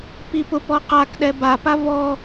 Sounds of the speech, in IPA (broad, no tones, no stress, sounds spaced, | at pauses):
p i p ʊ p ɔ q a k ɗ ɛ b a p a v ɔ